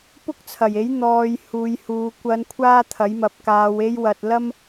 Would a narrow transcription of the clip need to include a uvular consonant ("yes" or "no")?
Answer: no